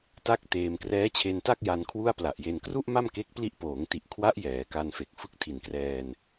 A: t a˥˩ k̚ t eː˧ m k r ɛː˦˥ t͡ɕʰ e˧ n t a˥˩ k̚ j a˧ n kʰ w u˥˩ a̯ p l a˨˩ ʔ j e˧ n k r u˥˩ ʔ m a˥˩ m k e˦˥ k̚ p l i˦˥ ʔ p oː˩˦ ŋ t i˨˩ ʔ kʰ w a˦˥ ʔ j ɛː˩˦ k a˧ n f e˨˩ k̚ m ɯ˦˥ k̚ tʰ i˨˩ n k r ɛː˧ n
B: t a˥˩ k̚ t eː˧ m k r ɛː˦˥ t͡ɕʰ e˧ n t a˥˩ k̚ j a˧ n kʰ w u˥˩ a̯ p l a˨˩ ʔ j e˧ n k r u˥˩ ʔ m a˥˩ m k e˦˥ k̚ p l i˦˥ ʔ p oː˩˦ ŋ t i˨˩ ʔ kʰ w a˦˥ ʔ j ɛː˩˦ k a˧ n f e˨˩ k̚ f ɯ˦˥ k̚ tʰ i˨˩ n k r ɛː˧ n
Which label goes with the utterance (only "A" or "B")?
B